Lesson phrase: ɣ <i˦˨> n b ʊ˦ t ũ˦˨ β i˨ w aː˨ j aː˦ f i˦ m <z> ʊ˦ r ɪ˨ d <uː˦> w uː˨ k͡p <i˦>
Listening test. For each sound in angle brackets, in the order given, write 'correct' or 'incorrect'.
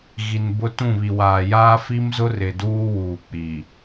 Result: incorrect: i˨, correct, correct, incorrect: i˨

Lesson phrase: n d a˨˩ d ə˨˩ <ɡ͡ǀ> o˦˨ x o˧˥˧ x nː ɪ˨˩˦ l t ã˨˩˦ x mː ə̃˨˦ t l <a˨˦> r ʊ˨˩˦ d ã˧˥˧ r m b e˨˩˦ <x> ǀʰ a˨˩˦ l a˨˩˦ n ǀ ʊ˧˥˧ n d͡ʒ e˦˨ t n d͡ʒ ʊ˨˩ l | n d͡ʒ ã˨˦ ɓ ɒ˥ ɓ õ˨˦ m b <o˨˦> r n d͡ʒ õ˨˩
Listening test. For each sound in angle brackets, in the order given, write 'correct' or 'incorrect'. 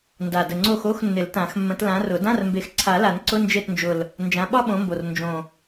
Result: incorrect: ŋ͡ǀ, incorrect: ã˨˦, correct, incorrect: o˨˩

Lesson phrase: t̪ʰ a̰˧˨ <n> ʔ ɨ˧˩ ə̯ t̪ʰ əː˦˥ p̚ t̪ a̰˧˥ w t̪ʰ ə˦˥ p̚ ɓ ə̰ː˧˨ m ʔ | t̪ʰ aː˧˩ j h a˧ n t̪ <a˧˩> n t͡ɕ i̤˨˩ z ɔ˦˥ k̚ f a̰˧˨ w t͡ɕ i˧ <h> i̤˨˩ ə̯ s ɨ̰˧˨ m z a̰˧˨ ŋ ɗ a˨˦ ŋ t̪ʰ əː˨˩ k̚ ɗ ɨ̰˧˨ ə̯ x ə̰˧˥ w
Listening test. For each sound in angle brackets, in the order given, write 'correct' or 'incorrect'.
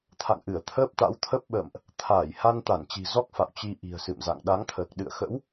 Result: incorrect: ŋ, correct, incorrect: ʔ

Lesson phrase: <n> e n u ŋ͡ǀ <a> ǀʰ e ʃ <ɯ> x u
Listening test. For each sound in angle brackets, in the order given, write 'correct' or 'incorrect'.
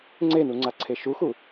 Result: incorrect: ŋ͡ǀ, correct, incorrect: u

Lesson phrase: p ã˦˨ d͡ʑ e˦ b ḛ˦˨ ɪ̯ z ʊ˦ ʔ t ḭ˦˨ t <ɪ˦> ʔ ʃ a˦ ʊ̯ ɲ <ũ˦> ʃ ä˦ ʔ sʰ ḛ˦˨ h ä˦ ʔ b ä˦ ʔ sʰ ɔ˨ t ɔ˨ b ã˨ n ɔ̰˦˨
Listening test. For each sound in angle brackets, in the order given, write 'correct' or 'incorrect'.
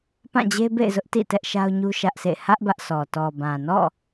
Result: incorrect: ɛ˦, incorrect: u˦

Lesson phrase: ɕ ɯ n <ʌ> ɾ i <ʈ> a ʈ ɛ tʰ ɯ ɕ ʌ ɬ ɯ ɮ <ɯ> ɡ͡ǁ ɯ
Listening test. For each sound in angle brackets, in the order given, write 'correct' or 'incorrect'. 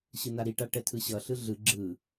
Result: incorrect: a, correct, correct

